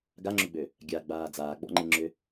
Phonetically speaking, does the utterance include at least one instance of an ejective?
no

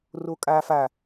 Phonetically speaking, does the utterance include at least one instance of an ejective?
yes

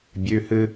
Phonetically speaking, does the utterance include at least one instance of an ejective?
no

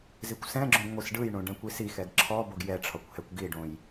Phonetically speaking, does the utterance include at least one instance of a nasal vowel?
yes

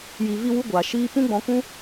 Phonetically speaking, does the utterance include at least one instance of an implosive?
no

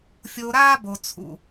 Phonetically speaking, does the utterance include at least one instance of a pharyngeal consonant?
no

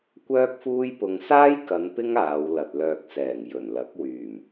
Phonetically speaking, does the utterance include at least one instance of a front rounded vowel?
yes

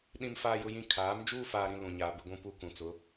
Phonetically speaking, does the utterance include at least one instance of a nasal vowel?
yes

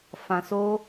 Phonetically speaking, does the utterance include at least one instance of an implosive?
no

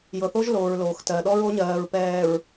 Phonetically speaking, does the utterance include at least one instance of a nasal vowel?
no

